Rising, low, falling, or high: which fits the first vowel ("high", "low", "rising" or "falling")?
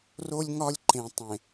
high